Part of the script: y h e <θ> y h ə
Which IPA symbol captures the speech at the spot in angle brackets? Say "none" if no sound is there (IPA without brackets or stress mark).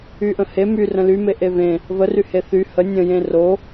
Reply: θ